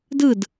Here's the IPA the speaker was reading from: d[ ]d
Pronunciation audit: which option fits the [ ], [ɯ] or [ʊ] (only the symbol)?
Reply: ɯ